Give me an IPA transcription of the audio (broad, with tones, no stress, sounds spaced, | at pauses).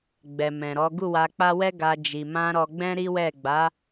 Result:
ɡ͡b ɛ˨ m ɛ̃˨ ɾ ɔ˨˦ ɡ u˦˨ w a˧ k͡p a˦ w ɛ˦ ɡ a˧ d͡ʒ i˨ m ã˧ ɾ ɔ˧ ɡ͡b ɛ̃˦ ɾ i˦ w ɛ˦˨ ɡ͡b a˨˦